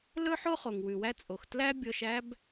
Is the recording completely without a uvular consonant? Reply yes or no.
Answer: no